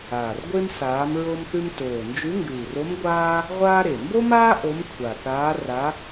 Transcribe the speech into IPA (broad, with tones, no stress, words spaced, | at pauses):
aː˨˩rɡʷe˥m saː˧˥mɹo˥mθʉ˥m toː˨˩nd͡ʒʉ˧˥ŋɡʉː˨˩ro˧˥m ɡʷaː˥ | ʁʷaː˥ɾe˨˩ mbo˥maː˥ ʔo˧˥mkʷʰa˨˩θaː˧˥ ra˧˥